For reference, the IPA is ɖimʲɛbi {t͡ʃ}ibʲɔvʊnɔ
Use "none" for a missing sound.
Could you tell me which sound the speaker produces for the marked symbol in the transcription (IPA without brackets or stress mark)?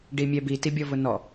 t